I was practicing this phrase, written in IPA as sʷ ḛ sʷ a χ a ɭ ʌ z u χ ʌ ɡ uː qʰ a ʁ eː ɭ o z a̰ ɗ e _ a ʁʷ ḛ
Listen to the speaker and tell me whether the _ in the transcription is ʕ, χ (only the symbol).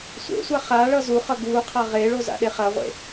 χ